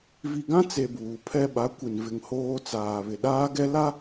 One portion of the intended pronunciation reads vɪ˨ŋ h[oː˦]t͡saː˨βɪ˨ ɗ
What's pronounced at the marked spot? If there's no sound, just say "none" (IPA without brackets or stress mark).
oː˦